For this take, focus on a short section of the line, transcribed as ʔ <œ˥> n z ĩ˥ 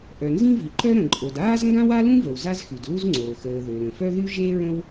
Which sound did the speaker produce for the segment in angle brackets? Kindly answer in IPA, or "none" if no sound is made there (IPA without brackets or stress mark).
œ˩